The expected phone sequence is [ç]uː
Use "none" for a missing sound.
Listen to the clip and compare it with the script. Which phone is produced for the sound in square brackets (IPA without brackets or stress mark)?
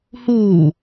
h